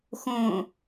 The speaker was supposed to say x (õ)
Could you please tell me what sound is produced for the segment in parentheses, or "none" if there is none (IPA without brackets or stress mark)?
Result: õ